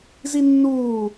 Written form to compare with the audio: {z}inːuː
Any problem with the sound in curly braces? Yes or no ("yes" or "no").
no